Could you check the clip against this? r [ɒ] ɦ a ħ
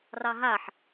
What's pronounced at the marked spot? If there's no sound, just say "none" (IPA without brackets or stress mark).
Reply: ɑ